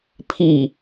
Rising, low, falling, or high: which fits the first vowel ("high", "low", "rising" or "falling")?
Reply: low